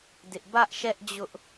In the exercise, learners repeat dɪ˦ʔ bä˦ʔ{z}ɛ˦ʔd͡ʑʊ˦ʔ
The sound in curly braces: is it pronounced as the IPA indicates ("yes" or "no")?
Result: no